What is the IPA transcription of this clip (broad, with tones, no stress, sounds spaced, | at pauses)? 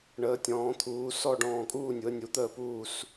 ɳ əː˨˦ tʲ ɔ̃ː˨˦ t̪ʰ uː˨˦ s ɔ˥˧ ɖ ɔ̃ː˥˧ kʼ uː˥˧ nʲ u˨˦ ə̯ nʲ u˨˦ t̪ əː˥˧ p uː˥˧ s